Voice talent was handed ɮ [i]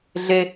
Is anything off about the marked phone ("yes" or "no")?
yes